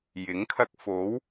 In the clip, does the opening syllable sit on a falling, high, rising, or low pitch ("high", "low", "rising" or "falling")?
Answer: rising